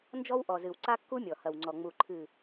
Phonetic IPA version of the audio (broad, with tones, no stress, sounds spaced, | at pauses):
n d͡ʒ ɔ˦ w ʔ ɔ˨ z ɨ˨ w ǀ a˦ kː u˦ mʲ ɔ˨ h ɐ˨ w ŋ͡ǀ ɔ˨ ŋ͡m u˨ ǃʰ ɨ˨